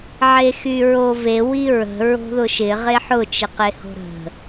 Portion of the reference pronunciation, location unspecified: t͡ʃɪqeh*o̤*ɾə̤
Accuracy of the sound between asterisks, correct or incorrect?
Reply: correct